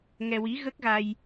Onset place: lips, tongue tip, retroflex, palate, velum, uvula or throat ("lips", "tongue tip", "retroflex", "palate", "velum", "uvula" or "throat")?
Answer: velum